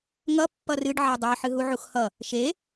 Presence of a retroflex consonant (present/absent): present